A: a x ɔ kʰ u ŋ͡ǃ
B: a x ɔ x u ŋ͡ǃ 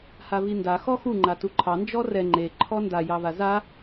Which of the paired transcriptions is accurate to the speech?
B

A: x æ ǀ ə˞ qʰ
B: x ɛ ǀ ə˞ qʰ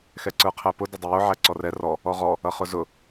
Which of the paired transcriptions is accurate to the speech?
B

